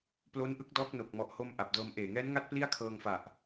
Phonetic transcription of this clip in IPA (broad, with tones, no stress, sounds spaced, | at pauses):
p l o˦˥ n ʔ ɯ˦˥ k̚ d ɔː˦˥ k̚ n o˨˩ k̚ m ɔ˨˩ ʔ h o˧ m ʔ a˨˩ p̚ d ɤː˧ m ʔ eː˨˩ ŋ ɛː˦˥ n ŋ a˥˩ t̚ p l i˥˩ a̯ kʰ ɤː˧ ŋ f a˨˩ ʔ